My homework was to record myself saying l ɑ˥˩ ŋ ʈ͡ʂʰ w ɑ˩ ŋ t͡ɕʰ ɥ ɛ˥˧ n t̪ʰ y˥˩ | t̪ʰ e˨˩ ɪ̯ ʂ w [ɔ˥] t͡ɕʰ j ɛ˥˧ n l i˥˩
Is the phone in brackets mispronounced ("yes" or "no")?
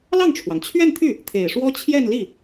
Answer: no